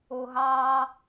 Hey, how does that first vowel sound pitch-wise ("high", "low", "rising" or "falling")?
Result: low